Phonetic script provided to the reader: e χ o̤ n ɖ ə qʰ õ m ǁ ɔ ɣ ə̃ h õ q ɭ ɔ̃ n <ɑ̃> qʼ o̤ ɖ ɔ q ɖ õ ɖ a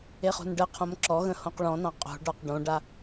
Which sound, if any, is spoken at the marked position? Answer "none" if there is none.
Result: ɑ̃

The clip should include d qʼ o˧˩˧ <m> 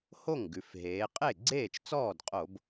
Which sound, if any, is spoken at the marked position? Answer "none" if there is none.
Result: b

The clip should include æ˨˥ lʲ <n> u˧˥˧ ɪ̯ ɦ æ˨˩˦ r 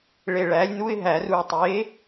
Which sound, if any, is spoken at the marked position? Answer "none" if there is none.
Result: n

